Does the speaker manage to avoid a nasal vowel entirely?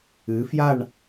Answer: yes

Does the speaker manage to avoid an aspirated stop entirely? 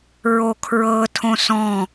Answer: no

